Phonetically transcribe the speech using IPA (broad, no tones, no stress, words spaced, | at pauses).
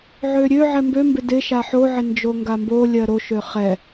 ʕøɾʲøʕɛ mbømbɪ dɪ ʃaħoʕɪ nd͡ʒoŋɡambolʲɜ ɾoʃø χɛ